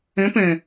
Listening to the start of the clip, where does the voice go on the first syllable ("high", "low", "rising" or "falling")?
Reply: rising